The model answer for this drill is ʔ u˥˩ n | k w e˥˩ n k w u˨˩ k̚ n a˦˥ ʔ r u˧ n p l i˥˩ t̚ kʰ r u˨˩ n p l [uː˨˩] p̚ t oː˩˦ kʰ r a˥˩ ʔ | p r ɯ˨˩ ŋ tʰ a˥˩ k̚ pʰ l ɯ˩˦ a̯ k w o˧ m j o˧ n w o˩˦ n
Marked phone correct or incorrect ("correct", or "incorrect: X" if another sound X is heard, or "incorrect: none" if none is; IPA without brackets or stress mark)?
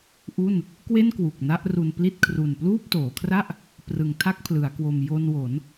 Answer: incorrect: uː˥˩